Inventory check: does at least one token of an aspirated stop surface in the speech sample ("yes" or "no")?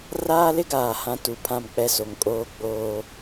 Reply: yes